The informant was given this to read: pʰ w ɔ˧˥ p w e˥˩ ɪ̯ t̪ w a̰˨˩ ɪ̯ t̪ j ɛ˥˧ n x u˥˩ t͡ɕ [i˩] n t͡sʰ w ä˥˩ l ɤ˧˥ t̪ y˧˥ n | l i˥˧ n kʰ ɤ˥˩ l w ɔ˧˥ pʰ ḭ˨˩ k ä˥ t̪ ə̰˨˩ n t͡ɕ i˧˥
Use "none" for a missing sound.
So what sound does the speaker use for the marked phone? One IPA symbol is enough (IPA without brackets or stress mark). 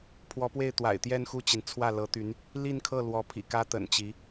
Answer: i˩